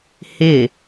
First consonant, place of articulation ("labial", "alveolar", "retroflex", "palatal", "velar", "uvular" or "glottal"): glottal